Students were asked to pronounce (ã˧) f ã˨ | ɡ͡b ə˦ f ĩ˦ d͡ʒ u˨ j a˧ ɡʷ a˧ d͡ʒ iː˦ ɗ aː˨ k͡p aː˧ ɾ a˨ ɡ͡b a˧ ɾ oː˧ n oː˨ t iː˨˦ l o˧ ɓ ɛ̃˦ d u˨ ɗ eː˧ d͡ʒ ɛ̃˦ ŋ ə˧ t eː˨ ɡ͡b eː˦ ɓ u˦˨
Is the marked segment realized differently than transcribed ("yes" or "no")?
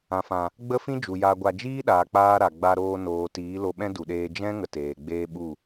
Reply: yes